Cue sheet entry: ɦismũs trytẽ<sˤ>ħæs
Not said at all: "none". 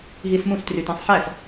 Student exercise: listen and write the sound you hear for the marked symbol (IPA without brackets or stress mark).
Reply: sˤ